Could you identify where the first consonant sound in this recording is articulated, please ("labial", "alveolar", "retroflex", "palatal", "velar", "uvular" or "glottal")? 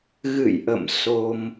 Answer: velar